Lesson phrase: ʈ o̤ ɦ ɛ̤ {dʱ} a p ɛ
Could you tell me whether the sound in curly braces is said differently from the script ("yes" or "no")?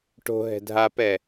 no